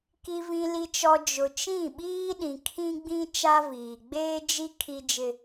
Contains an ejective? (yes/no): no